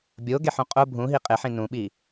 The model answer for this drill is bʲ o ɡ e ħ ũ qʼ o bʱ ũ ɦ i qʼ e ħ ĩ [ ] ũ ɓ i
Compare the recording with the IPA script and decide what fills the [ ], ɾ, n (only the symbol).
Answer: n